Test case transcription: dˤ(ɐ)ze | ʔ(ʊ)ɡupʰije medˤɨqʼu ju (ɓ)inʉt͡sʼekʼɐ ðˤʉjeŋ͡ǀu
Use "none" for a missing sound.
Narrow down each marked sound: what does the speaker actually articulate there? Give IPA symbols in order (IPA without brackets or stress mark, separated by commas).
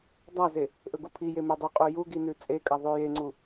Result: a, ɵ, ɡ